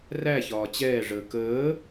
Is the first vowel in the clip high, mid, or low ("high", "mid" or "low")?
low